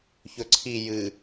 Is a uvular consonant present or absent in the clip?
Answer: absent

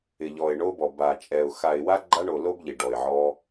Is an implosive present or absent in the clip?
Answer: absent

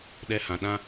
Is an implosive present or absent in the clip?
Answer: present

